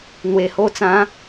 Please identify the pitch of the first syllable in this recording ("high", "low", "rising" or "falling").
low